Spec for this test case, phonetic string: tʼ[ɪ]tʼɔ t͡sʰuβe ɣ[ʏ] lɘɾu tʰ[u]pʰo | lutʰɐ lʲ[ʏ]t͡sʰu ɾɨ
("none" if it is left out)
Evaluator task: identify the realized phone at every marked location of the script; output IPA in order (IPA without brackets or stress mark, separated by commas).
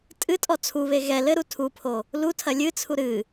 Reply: ɨ, ɛ, u, ɨ